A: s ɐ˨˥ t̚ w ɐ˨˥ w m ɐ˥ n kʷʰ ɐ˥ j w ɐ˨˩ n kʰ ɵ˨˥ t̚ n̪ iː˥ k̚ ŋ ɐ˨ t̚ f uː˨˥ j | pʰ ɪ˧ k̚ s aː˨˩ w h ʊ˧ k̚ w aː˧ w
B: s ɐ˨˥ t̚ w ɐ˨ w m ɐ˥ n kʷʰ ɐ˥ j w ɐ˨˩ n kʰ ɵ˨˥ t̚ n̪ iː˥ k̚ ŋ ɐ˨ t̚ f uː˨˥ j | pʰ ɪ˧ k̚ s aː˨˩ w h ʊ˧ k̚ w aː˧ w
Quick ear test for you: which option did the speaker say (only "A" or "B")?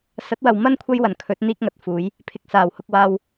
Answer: B